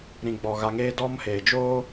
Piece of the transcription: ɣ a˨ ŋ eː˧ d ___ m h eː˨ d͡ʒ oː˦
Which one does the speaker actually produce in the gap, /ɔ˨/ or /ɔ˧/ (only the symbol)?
ɔ˧